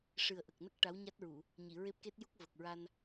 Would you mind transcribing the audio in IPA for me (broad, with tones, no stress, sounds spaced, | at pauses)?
ʂ ɨ˨˩ ə̯ ʔ ə˨˩ k̚ n ə˦˥ k̚ ʈ a˧˥ w ɲ a˦˥ t̚ ɹ u˨˩˨ | ɲ i˨˩˨ ɹ e˦˥ p̚ k e˦˥ t̚ j u˦˥ k̚ v ə˨˩ k̚ ɹ a˧ n